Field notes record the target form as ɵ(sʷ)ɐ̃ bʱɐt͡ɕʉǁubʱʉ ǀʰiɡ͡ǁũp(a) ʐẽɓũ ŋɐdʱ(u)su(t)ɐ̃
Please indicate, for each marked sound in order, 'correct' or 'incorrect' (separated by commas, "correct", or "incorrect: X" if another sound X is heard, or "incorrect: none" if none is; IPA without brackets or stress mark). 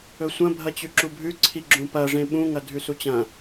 correct, incorrect: ɐ, incorrect: ʉ, incorrect: t͡ɕ